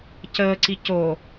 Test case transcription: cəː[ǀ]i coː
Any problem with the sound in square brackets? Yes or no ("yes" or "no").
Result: no